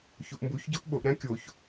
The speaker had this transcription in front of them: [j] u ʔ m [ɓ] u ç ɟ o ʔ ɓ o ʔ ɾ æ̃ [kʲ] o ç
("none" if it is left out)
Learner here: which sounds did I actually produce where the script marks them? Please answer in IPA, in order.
ç, b, kʲ

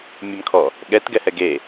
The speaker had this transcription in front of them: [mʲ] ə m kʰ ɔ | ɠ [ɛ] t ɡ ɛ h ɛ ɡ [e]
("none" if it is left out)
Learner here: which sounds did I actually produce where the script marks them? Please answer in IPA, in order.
mʲ, ɛ, e

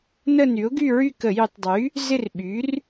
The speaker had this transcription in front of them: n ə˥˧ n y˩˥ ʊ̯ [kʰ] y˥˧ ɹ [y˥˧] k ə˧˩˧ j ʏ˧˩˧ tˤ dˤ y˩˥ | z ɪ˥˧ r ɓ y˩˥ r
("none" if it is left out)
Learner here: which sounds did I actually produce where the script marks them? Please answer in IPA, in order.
ɡ, y˥˧

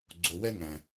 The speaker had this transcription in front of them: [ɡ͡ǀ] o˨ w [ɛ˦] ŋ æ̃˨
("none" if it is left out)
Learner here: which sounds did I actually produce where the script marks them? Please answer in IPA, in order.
ɡ͡ǀ, ɛ˦

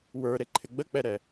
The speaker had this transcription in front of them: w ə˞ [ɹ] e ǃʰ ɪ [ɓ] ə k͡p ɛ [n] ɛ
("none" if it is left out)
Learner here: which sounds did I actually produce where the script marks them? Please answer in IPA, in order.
ɾ, ɡ͡b, ɾ

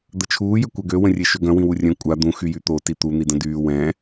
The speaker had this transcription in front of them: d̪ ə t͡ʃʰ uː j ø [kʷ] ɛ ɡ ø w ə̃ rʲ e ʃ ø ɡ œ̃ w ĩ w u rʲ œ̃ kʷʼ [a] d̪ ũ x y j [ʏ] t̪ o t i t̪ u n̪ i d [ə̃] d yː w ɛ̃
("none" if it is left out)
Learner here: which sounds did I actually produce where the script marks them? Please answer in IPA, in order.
kʷ, a, y, ə̃

